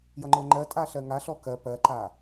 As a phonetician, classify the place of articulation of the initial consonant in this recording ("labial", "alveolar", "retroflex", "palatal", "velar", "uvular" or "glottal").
palatal